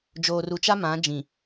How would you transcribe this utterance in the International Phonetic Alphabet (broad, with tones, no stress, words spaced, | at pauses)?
d͡ʒoː˨ru˨t͡ʃa˦ mã˨˦d͡ʒĩ˨